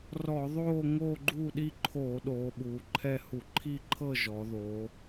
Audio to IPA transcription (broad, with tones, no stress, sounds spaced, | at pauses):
r ɔ˧˩˧ ðˤ oː˥˧ ŋ o˥˧ ɡ͡ǃ u˥˧ ɗ i˥˧ ǃʰ oː˧˩˧ ɗ oː˩˧ ɓ uː˩˧ ǃʰ ɛ˥˧ h u˧˩˧ ǃʰ iː˥˧ ǃʰ ɤ˥˧ ʒ ɔ˩˧ ð o˩˧